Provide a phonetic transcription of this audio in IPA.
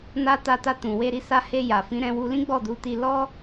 na˧ ta˧ta˧ tũ˨ we˧ɾi˧sa˧he˧ ja˨fĩ˨˦ ɾɛ̃˧wu˧ lĩ˦ɡ͡bɔ˦˨du˨˦ti˧ lɔ˦

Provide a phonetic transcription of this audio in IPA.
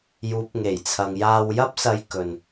juː˨˥p̚ŋe˨˩jt͡sʰɐ˨ŋ jaː˧wjɐ˥p̚sɐ˧j kɵ˨n

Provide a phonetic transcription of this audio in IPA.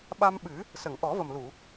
ɓa˧mɓɨ˨˩˦ | sə˨˩˨ŋʔɔ˨˩˦və˨˩mlu˨˩˨

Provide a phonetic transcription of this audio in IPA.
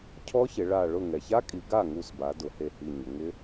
cʰɔ˦˥çɪ˩˧ ɭa˧˩ɭʊ˥˩ ŋɛ˩ça˦˥kʼi˩˧ ɡa˥˩ŋu˧˩sba˩˧ dʊ˩˧he˧˩hi˧˩ ɲʊ˩˧ŋɪ˦˥

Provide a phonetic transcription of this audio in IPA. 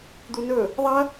d̪unɵ | ðˤɐ

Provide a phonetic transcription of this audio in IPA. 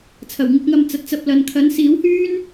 t͡sʰɐ˨˩wŋɪ˧k̚ŋɐ˧m t͡sɐ˨t̚t͡sɐ˧p̚ lɐ˨nkʰɐ˨˥n siː˨˥whyː˥n

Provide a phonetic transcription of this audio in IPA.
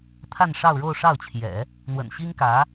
t̪ʰa˥˧nʂɑ˥˧ʊ̯ ɻo˥˧ʊ̯ʂɑ˥˩ʊ̯t͡ɕʰjɛ̰˨˩˦ | n̪wə̰˨˩nɕi˥ŋkä˧˥

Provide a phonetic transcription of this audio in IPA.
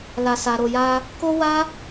la˧sa˧ɾo˧ja˦ | ko˦wa˦

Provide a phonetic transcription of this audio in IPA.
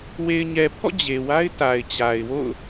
we˨ɪ̯ɲɛ˨pʰɔ̰˦˨ d͡ʑe˨wa˦ɪ̯ ta˨ɪ̯t͡ɕa˨ɪ̯ wo̰˦˨ʊ̯

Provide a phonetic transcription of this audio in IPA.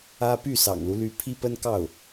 ä˥ py˥˩sɑ̰˨˩ŋlu˦ly˧˥ pʰi˥pə˥nkɑ˥˩ʊ̯

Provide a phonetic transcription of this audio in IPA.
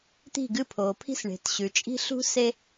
t̪i̤˦˨ɡɨ˦˨pʰoː˨pʰi̤˦s ɳe̤˨tɕʉ˨ t͡ʃʼi̤˦ ɬṳ˦ se˦

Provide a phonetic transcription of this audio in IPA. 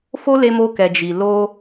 fo˦le˧mo˧kɛ˨ d͡ʒi˨ lo˧

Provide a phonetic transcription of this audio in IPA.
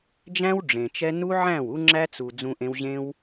d͡ʒæ̃˦w ɖ͡ʐẽ˨t͡ʃɛ˦ nu˦ʕæ̃˦˨w u˦ŋ͡ǁæ˦t͡su˨ d͡zũ˧ʔẽ˧wʑẽ˦w

